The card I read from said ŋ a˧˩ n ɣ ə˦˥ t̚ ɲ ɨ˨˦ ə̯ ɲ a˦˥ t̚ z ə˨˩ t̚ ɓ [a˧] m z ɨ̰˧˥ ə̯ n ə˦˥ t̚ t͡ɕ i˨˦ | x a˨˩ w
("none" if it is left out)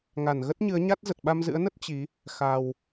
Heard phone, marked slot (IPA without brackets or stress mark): a˧